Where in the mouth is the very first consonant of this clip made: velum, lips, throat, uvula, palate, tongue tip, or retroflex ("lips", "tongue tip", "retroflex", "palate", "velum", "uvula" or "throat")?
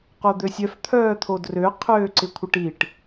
uvula